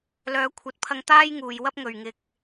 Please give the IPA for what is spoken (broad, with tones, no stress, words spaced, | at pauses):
lœː˨˧kʷʰɐ˨˥t̚pʰɐ˧ŋ t̪aː˥jŋuː˨jwɐ˥p̚ ŋɵ˨ɥŋɪ˧k̚